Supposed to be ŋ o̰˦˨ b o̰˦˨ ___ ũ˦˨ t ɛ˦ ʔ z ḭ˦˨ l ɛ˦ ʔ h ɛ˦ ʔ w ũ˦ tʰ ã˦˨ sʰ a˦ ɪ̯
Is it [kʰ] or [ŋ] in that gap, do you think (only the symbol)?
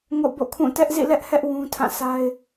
kʰ